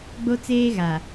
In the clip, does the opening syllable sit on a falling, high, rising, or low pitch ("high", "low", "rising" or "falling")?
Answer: high